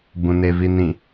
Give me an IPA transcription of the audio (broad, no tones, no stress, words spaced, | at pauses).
bũnevinĩ